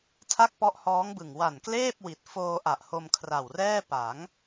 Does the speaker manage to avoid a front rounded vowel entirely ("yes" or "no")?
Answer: yes